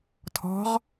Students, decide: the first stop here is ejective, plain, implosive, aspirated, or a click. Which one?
aspirated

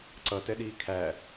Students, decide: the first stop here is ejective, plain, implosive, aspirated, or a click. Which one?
click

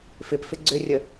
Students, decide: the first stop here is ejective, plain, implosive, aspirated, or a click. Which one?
plain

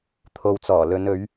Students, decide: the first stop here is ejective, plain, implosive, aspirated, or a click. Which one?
aspirated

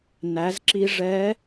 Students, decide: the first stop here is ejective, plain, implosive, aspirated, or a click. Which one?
click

